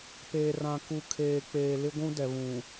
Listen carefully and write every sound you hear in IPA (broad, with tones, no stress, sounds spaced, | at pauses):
p eː˨ r ã˨ k u˨ kʰ eː˨ k͡p eː˨ l ɪ˦ ɡʷ ũ˦ d ɛ˨ β ũ˨